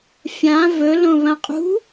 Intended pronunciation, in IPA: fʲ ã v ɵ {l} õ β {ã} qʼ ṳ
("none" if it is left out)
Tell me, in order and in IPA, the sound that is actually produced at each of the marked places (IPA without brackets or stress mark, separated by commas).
l, ɐ̃